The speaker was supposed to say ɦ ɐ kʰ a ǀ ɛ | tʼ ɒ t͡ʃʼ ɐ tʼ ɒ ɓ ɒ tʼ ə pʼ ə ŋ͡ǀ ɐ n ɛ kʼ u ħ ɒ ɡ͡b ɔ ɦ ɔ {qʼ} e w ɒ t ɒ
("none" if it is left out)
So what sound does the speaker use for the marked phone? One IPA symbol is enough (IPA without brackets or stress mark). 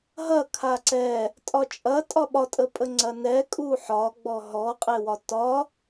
qʼ